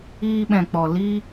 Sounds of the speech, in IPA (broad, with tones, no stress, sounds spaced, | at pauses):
iː˧ ɓ ɛ̃˨ k͡p ɔ˨ l i˧